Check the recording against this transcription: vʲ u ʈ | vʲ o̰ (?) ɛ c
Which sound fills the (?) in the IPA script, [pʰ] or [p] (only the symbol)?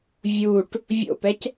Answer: p